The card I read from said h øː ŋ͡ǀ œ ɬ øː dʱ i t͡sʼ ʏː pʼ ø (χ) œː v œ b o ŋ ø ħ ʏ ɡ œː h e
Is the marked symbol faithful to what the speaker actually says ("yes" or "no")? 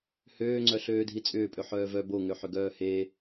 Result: no